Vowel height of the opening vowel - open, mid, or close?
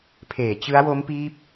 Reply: mid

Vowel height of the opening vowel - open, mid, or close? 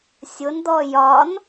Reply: close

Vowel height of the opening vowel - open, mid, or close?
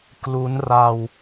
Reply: close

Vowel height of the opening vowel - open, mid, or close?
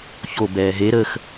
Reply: mid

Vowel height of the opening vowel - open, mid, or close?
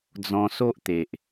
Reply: mid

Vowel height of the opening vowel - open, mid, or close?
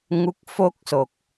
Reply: close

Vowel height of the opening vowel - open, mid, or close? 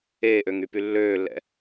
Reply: mid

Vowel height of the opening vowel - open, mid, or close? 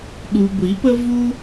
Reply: close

